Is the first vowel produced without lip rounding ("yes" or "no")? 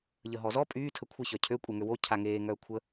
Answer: yes